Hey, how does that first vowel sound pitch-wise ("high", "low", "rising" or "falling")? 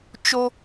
high